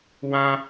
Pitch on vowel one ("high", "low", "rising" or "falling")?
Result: high